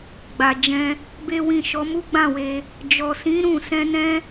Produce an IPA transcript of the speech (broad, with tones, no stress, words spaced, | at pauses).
ɡ͡ba˨ d͡ʒɛ̃˧ | be˦wĩ˦˨ ʃɔ˨˦mu˦ɡ͡bã˦˨we˧ | d͡ʒɔ˨sĩ˨˦ ɾũ˦˨ sɛ̃˧nɛ̃˦